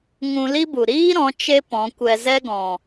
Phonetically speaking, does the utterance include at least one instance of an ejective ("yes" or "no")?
no